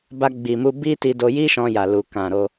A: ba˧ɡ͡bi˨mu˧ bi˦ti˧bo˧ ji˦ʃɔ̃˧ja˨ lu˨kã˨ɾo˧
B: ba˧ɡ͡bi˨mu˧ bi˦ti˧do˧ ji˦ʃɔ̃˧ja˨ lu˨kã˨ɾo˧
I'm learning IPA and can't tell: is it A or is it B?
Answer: B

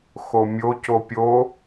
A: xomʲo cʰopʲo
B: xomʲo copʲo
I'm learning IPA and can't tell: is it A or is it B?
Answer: B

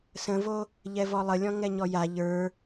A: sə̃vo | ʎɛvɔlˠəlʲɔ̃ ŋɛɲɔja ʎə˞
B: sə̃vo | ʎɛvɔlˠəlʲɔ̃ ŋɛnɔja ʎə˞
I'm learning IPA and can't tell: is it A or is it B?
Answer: A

